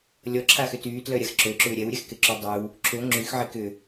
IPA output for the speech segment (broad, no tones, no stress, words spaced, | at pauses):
lʲɔǁʰaxʏ tyːtlœɾʲax ǁøǁʏː ɾʲɛwɾʲɛxkɪǁy dˤyw | ǁʰø ŋ͡ǁyxʕɪ kʏ